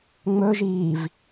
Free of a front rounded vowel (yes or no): yes